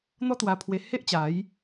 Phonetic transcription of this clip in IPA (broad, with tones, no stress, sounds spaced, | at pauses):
n̪ ɔ˦ t̪ w a˧ pʰ w e˧ h e˦ ʔ t͡ɕ a˨˦ j